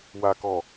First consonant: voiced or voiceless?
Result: voiced